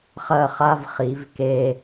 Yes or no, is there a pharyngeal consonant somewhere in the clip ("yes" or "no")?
no